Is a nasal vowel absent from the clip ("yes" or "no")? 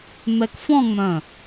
no